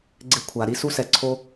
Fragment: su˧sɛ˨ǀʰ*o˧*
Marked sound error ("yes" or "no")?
no